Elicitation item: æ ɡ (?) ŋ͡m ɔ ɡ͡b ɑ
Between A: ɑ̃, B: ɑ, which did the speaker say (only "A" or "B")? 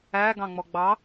A